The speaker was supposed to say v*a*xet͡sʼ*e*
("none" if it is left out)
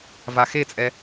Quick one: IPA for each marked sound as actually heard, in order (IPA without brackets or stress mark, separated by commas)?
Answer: a, ɛ